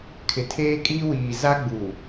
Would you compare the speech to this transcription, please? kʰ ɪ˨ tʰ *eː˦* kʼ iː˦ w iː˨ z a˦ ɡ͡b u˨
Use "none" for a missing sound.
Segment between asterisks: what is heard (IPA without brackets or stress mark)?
eː˦